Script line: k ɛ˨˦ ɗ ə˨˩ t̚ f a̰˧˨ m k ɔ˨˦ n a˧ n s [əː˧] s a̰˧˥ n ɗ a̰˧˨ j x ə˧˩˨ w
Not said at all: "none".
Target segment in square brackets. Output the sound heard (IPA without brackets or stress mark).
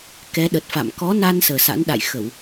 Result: əː˨˩